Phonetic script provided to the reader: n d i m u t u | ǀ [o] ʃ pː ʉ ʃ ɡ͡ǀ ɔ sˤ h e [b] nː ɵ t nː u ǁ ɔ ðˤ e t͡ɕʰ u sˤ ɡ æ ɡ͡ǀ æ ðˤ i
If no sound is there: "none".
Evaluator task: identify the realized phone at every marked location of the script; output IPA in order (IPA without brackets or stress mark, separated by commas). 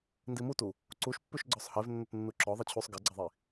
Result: u, v